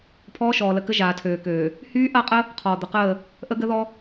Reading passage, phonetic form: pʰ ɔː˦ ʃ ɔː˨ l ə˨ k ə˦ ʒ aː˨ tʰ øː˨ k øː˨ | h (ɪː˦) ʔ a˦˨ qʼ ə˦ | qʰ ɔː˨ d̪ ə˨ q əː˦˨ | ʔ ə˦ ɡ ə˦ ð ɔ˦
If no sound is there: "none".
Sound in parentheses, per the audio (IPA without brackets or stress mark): yː˦